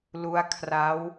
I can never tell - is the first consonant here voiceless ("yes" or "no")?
no